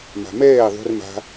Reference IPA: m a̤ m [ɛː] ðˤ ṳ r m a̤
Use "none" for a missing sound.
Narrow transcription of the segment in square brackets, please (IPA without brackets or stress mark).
ɛː